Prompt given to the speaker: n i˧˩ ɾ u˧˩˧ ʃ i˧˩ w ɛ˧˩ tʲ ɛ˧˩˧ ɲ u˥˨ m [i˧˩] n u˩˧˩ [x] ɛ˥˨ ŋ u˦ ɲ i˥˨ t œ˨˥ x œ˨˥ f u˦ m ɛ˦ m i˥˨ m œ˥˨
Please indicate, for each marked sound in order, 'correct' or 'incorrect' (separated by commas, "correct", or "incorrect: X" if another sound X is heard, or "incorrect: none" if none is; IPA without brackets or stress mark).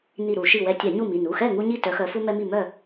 incorrect: i˩˧˩, correct